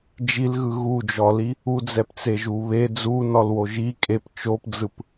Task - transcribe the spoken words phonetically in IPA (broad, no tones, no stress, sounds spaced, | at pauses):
d͡ʒ i l ɣ ɯ ɣ u d͡ʒ ɔ l i | u d͡z ɛ p t͡s e ʒ u β e d͡z u n ɔ l w o ʒ i kʼ e p t͡ʃ o p d͡z ɯ p